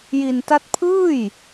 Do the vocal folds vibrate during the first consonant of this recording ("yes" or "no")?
yes